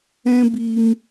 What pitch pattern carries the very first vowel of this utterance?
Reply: high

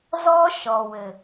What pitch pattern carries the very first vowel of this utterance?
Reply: high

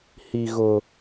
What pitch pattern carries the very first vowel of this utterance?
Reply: low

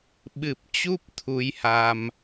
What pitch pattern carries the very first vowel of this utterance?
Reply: low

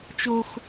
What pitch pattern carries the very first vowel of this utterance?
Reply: high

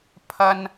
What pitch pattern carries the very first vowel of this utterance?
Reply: high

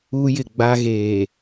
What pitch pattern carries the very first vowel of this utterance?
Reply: high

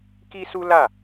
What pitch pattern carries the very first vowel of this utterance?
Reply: high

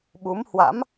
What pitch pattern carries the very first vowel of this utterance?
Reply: rising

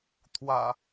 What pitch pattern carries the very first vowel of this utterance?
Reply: low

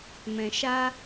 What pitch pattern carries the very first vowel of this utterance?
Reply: low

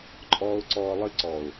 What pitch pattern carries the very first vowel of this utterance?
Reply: low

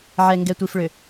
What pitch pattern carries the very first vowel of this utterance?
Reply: low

